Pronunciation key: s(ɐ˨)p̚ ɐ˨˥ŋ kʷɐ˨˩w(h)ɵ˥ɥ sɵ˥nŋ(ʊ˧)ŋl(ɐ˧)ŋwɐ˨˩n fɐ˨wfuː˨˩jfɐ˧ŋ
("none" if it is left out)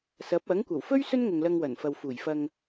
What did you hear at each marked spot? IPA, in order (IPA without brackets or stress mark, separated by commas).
ɐ˨˥, f, ʊ˨, ɐ˧